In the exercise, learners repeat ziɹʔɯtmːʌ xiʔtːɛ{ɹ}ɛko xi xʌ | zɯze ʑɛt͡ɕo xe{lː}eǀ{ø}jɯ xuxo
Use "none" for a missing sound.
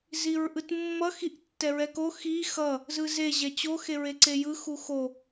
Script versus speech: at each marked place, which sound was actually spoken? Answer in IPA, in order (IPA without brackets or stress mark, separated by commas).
ɹ, ɹ, e